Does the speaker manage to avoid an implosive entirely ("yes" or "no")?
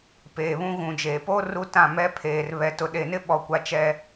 no